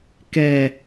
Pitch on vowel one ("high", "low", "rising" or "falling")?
low